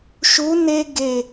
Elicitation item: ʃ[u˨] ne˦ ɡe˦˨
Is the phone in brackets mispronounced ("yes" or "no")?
yes